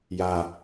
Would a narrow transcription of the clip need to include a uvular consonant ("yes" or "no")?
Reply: no